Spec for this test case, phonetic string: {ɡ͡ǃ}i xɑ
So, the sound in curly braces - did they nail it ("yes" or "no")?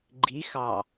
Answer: yes